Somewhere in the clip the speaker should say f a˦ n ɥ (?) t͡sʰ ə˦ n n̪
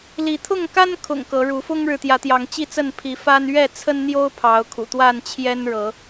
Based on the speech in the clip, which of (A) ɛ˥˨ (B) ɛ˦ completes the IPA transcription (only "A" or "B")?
A